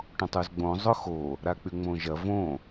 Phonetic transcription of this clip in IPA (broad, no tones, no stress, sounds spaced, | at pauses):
ʈ õ tˤ u z ɡ͡b õ zˤ ʊ x o | ɾ a k͡p y ŋ͡m õ ʒ ɐ v õ